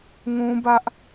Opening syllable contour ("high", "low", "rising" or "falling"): high